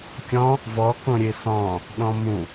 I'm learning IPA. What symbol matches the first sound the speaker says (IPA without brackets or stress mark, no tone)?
kʲ